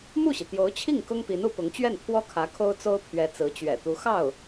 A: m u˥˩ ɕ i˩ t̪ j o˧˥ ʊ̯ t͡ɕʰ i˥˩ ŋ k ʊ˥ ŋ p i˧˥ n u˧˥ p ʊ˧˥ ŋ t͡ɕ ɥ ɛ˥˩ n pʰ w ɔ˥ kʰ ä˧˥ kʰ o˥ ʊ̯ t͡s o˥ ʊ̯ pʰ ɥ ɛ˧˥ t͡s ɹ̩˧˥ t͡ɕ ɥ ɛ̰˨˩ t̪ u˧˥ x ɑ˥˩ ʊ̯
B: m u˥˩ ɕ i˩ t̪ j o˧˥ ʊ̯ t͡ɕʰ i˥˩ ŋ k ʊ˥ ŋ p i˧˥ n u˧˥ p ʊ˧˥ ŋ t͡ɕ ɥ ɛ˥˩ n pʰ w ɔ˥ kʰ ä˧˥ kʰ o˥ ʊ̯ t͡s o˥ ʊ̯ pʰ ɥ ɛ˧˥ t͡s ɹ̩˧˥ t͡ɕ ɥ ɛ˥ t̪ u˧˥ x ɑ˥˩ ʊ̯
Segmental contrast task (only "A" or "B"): A